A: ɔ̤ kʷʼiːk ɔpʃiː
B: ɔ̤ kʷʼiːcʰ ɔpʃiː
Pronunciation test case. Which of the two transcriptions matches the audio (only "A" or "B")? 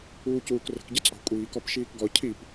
A